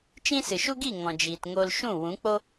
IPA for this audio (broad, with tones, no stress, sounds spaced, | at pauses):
t͡ʃ ĩ˦ s ɨ˨ ʃ u˦ ɡ i˦˨ ŋ ɔ̃˨ d͡ʒ iː˨ t ŋ o˧ l ʃ ũ˦˨ w ũ˨˦ k͡p o˦